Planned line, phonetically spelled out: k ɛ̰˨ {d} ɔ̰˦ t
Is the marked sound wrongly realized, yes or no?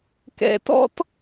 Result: yes